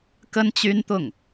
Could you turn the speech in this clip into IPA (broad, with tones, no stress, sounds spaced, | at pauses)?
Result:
k ə˥ n t͡ɕ y˥ n t̪ ʊ˥˩ ŋ